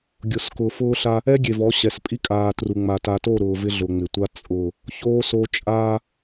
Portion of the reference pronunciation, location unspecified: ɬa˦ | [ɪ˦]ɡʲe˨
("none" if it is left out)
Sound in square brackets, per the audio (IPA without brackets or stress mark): ɛ˦